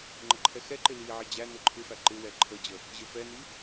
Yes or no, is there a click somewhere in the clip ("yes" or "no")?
yes